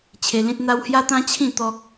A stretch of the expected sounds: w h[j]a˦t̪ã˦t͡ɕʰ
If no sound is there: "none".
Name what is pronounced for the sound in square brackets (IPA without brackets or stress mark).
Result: j